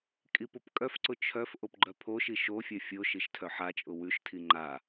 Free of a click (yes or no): no